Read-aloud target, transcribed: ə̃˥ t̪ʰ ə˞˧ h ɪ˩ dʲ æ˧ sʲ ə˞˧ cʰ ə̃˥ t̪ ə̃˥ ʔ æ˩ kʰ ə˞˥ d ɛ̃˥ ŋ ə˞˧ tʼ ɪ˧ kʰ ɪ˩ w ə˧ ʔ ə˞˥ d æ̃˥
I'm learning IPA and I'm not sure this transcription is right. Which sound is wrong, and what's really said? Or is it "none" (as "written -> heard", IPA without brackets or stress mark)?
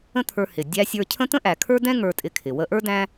none